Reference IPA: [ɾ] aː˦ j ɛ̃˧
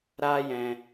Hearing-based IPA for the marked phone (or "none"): ɾ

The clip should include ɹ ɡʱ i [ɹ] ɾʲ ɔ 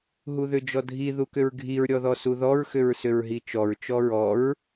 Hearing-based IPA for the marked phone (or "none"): ɹ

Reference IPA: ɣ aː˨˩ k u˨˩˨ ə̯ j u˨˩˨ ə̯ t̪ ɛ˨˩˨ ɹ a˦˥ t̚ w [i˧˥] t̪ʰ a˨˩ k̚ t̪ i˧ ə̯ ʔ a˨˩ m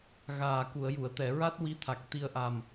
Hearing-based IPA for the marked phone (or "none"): i˧˥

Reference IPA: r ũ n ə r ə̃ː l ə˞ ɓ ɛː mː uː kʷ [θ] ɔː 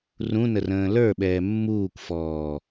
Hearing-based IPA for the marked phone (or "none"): f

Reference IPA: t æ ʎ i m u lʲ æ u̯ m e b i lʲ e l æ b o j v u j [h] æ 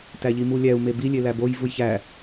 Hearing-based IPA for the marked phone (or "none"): ç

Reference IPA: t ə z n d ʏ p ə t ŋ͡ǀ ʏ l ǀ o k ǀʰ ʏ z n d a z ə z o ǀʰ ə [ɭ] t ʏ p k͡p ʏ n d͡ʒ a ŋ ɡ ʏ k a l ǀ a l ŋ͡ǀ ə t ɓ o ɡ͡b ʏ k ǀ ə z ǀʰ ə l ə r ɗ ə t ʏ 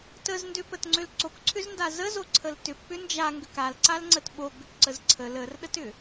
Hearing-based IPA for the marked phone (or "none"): l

